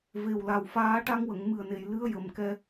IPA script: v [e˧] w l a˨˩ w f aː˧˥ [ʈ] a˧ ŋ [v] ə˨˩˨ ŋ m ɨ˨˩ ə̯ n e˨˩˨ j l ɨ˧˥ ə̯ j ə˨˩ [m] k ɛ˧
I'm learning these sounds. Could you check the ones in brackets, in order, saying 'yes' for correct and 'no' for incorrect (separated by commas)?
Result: no, yes, no, yes